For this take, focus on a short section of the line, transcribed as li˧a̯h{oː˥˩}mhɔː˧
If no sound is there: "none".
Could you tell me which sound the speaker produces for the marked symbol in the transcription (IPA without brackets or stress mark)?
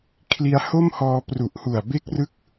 o˥˩